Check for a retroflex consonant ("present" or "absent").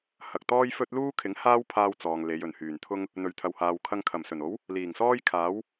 absent